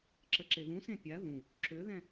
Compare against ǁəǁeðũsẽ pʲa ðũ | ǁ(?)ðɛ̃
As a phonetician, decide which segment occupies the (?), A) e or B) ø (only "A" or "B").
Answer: B